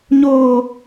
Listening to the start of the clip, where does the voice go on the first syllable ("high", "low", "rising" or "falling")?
high